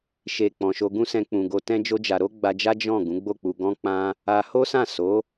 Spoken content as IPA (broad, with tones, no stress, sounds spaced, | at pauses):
ʃ e˨ k͡p ɔ̃˨ ʃ o˧ ɡ ũ˦ s ɛ̃˧ k͡p ũ˨ ɡ o˧ t ɛ̃˦ d͡ʒ o˦ d͡ʒ a˧ ɾ o˦ ɡ͡b a˧ d͡ʒ a˦ d͡ʒ ɔ̃˦˨ ɡ ũ˨˦ ɡ͡b o˦˨ k͡p u˧ ɡ ɔ̃˦ k͡p ã˦ | a˧ h o˦ s ã˦˨ s o˨˦